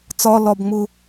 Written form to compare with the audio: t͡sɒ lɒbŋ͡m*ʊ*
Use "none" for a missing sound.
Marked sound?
ʊ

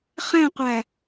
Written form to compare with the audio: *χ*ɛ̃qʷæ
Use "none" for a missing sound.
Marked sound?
χ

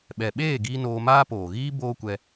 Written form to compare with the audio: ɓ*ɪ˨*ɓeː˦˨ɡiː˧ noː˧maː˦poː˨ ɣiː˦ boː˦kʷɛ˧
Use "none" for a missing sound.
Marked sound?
ɛ˨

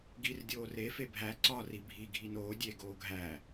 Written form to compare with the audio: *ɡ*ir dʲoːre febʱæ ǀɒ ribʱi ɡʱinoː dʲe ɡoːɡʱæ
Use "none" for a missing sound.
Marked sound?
ɡ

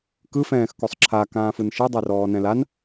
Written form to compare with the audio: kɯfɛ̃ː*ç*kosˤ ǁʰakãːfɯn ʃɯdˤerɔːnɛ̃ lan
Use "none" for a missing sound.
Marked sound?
x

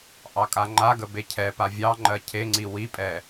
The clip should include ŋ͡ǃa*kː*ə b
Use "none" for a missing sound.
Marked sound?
ɡ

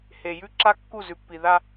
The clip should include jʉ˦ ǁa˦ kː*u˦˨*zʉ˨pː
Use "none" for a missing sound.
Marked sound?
u˦˨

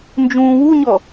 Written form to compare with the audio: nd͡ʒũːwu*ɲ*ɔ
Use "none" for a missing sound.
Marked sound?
ɲ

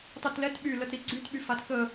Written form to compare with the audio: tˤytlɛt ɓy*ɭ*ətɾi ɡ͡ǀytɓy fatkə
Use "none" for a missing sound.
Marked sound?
l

